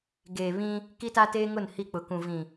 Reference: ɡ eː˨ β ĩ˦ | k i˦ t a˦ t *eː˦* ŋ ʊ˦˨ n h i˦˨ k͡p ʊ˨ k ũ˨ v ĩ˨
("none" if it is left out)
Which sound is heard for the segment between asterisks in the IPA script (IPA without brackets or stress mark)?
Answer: eː˦